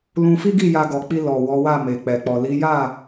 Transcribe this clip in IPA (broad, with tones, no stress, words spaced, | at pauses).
lũ˧fi˦ɡi˦˨ ja˧ɡɔ˨k͡pi˧ lɔ˨ wɔ˨˦wa˦˨ me˨ k͡pɛ˨k͡pɔ˨ li˨˦ja˦˨